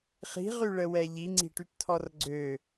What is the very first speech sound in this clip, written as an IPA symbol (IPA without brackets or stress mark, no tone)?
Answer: χ